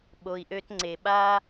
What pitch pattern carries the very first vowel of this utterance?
low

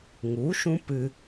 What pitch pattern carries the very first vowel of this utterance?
rising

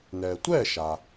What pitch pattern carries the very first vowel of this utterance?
low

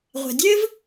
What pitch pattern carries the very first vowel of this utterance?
low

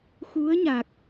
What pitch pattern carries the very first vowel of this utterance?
rising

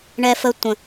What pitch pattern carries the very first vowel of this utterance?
high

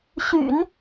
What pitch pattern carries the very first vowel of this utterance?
low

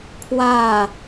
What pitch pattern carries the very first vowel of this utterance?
falling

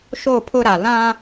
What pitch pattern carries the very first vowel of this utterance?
falling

